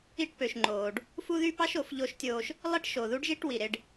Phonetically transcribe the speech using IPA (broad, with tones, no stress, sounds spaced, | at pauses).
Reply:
i˦˨ ʈ p ø˨ ʃ ŋ͡ǃ oː˨ ɖ | f u˦ ð y˦ p ɑ˦ ʃ o˨ f ʎ o˦ ʃ tʲ oː˦ ʃ | lˠ e˦ ʈ ʃ o˨ ð u˦ ɖ ʒ i˦ ʈ w i˨ ɾ e˦ ɖ